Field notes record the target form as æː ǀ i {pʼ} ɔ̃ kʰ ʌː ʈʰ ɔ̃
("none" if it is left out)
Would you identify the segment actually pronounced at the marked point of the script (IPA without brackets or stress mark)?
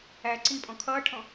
pʼ